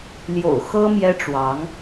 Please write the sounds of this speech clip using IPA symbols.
l j o̰˨˩ ʊ̯ x ɤ˥ m j ɛ˥ ʈ͡ʂ w ɑ˧˥ ŋ

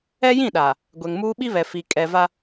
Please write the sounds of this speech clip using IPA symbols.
ɛ˦ j ĩ˦˨ ɗ aː˨ | ɡʷ ɛ˨ ŋ m uː˦ ɓ i˦ β ɛ˨ f i˨ kʼ ɛ˨ v a˦

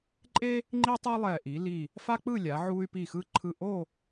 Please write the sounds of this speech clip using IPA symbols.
ǃʼ e˥ | ŋ͡ǃ i˥ tˤ ɛ˥ lˠ ɛ˧˩ ʔ i˩˧ l i˧˩ | f a˥ k͡p ɯ˥˧ lʲ a˩˧ ʕ u˧ y̯ p i˧˩ x ɯ˧ ǃʰ ɯ˧˩ ʔ o˥˧

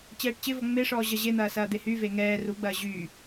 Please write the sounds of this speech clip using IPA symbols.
t͡ɕ ɛː ʈ t͡ɕ ɪ v ɔ ŋ͡m e ʂ ɔː ʑ ɐ ʑ e n̪ ɐː s ɐː d̪ e h yː v eː ŋ ɛː r u ɡ͡b ɐː ʑ yː

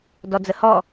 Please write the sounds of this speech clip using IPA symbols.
d ɔ d͡z ə h ɔ

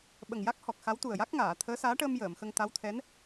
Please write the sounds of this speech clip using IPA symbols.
ɓ ə˨˩ ŋ j a˦˥ k̚ h ɔ˨˩ k̚ x a˧˥ w t̪ u˨˩ ə̯ j a˦˥ k̚ ŋ aː˨˩˨ t̪ʰ əː˧˥ s aː˧˥ ʈ əː˧ m j əː˨˩˨ m x ə˧ ŋ t̪ a˧˥ w t̪ʰ ɛ˧˥ n

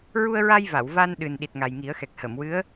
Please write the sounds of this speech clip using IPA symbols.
ɹ u˧ ə̯ ɹ a˧ j v a˨˩˨ w v a˧ n ɗ ɨ˨˩ n ɗ i˨˩ t̚ ŋ a˨˩ j ŋ i˨˩˦ ə̯ x ɛ˨˩ k̚ h ə˨˩˨ m w ɨ˧˥ ə̯

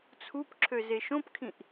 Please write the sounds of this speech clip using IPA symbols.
t͡sʰ u p ǁʰ ø z e ʃ õ p kʰ ĩ ʔ

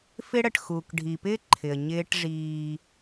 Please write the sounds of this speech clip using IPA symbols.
f ɪ˦ ɽ ə˨ ʈ x uː˨ k ɖʱ i˨ p ɪː˦ ǃʰ ɪ˨ ə̯ ɲ ɪː˦ ʈ ʐ iː˦

